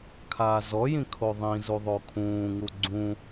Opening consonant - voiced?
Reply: no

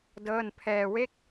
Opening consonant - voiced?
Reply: yes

